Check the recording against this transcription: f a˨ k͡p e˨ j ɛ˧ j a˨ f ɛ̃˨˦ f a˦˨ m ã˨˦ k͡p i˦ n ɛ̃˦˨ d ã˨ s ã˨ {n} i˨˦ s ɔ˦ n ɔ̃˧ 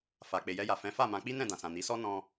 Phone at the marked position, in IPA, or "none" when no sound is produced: n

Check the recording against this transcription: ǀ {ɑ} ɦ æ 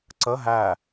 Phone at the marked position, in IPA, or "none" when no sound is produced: ə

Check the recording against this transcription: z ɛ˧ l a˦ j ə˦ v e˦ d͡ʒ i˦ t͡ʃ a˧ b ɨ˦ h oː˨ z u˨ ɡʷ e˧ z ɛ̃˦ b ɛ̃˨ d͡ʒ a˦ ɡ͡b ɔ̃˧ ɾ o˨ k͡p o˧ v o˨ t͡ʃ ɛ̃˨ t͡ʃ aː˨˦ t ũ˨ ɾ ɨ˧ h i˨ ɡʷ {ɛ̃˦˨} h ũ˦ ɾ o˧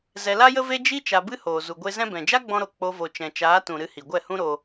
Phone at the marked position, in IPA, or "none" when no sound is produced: ɛ˦˨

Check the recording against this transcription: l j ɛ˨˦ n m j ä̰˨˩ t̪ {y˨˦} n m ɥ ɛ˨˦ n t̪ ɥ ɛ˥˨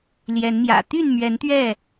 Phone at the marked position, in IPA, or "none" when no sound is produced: y˥˨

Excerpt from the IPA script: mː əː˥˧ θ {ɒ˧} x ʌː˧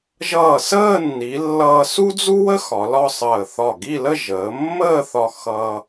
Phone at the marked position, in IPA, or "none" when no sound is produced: ɒ˧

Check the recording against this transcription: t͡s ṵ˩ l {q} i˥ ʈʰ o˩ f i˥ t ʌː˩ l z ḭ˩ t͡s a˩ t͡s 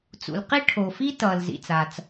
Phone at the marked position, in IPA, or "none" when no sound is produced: q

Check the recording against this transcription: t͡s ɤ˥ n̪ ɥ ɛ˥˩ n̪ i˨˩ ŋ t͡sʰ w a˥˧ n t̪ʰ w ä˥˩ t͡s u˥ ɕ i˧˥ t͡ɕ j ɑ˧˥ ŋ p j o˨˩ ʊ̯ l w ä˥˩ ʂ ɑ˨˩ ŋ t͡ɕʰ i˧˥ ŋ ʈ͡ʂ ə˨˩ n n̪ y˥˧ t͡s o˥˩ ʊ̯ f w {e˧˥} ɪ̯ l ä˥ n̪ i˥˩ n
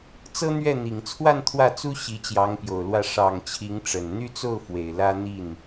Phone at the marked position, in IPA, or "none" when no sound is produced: e˨˩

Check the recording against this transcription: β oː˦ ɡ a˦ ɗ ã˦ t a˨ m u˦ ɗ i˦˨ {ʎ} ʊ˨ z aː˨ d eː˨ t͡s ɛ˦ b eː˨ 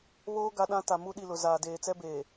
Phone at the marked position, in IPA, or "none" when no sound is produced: l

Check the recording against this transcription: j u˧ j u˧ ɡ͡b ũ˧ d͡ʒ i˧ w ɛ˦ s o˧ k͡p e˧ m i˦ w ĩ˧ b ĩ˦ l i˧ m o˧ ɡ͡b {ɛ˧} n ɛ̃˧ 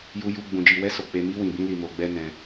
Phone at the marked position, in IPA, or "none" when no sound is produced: ɛ˦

